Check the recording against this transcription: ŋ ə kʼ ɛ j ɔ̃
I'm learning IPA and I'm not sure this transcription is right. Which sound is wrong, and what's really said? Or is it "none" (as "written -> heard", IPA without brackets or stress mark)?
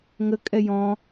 none